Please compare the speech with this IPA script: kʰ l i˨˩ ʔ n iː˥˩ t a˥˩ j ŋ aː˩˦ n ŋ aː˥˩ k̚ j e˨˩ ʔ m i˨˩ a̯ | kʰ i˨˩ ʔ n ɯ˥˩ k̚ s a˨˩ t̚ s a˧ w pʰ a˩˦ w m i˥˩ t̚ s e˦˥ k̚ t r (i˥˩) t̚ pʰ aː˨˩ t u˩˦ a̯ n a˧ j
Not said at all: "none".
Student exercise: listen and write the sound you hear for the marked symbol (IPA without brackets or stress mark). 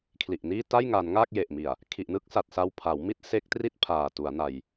i˥˩